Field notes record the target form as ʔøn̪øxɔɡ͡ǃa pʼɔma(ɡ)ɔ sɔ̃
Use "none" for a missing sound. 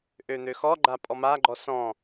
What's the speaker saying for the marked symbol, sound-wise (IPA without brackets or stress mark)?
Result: ɡ͡ǃ